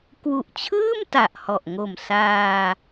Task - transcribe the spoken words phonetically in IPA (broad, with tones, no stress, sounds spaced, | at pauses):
k w u˨˩ ʔ t͡ɕʰ ɯː˥˩ m t a˨˩ ʔ h ɔ˨˩ ʔ ŋ o˨˩ m s aː˧